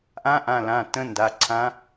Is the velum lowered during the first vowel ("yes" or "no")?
yes